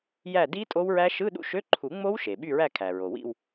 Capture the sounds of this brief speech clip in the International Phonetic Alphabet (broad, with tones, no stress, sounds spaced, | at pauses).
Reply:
j æ˦˨ d i˦˥ tʼ o˦˥ w ɹ æ˦˥ ʃ ɯ˧˥˧ ɗ ṵ˦˥ ʃ ø˧˥˧ ǃʰ u˨˩˦ ŋ͡m o˦˥ w ʃ e˩ ɓ y˦˨ ɹ æ˦˨ kʰ æ˩ ɹ o˩ w ḭ˦˨ w